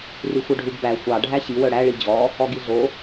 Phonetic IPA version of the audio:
rixʷœɖʱuɡ bæ xʷɑ ɖʱæɕi wœɽæ ɭid͡ʑɔ | ɔɡiɮo

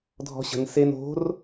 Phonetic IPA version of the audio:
dʱɔ̤ɕə̤n sen o̤r

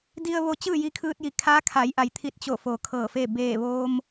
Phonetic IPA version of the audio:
di˧ə̯ʋo˧ t͡ɕɯː˥˨ji˧kʰɯː˧t̚ji˩ kʰaː˧˥kʰa˩˧jʔa˩jt̪ʰi˧˩t̚ t͡ɕo˧˩ foː˩ kʰɤː˧˩fe˥˨ beː˧˩ʋoː˧m

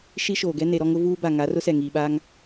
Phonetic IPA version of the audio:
ʃi˦ʃoː˨ɡɛ˦ ne˨ɾɔ˦ŋʊ˦vuː˦ ba˨ŋa˨˦rʊ˦sɛ˨ ŋiː˨ɓaː˦ŋ

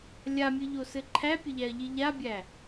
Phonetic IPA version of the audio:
lʲamʲɨʎosɘ ǃʰæpʲɘʎæɐ̯ʎi ʎabʲæ

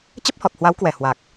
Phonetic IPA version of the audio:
t͡ɕə˦˥p̚hɔ˨˩t̚hwa˨˦wkwɛ˨˩ hwaː˨˩k̚

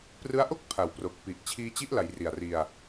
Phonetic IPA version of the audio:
prɯ˦˥a̯ʔo˥˩k̚ pʰa˩˦wpro˨˩k̚pi˨˩ʔ t͡ɕʰiː˧t͡ɕi˦˥ʔla˩˦j ri˨˩a̯ri˧a̯

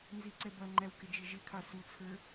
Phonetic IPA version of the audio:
nziǀɛbʌŋ͡ǃæw kɪd͡ʒɪʒɪkʰɑ sut͡sʰə˞

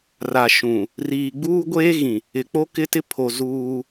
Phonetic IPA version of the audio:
ra˨ʃũ˨ | riː˨ɡ͡buː˦ ɡʷeː˦ɣĩ˨ | ɪ˨k͡po˦kɪ˦tɪ˦ pʰo˨ zuː˦

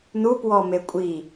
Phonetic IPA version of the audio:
nupwɔmekʷʼi

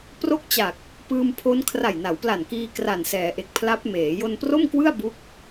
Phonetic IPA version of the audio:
pro˥˩k̚t͡ɕa˨˩k̚ | pɯː˧mpʰo˦˥n kʰra˨˩jna˩˦wpla˨˩nkiː˧ kra˨˩nsɛː˩˦ʔe˨˩k̚pʰla˦˥p̚ meː˩˦ jo˧npro˥˩mkwɯ˥˩a̯ bu˥˩k̚

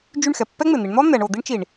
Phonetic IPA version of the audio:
d͡ʒy˦˨ɳxɛ˩pːɛ˥ ŋ͡mɪ˩n̪i˩˧ɳ n̪ɔ˥ n̪ɛ˩˧ɳo˧˩˧ d̪i˥ɳt͡ʃi˧˩˧ɳ

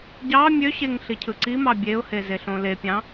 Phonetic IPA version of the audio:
ɟɑ mʲøɕeŋ ɬicʰɯǀimɑ bʲeʊ̯he zeɬõlepʲɑ̃

